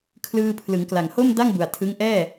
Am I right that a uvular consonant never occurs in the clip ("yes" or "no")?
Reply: yes